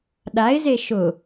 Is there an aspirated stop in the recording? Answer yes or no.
no